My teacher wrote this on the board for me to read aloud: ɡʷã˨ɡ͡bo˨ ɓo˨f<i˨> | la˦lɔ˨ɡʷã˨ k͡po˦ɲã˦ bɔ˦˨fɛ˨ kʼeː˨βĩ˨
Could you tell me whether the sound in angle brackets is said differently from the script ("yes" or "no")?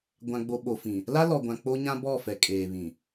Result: yes